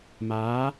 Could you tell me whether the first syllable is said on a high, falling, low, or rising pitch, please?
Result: rising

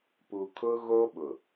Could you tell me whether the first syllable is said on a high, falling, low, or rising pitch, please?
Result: low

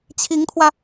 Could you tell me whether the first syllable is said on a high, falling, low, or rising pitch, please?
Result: rising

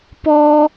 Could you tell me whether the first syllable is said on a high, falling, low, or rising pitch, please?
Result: high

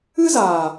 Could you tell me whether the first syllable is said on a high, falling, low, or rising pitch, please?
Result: high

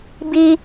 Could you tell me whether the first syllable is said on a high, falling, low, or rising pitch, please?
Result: high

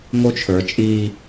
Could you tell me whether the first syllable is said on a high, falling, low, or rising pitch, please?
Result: high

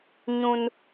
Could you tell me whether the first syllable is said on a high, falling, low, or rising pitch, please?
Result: high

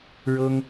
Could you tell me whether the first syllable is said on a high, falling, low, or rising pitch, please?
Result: high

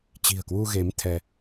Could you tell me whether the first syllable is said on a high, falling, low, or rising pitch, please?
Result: low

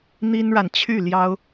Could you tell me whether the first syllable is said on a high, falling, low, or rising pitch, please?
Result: high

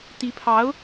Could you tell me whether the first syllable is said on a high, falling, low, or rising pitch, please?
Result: rising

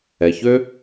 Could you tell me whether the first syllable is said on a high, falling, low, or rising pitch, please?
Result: low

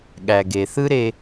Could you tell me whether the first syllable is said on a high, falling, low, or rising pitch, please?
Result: low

